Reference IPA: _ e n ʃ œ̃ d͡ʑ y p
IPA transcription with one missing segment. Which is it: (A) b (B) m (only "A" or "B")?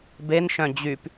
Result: A